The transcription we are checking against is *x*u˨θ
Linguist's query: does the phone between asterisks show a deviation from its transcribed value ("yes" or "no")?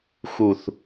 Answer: no